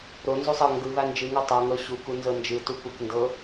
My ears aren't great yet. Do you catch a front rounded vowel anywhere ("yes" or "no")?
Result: no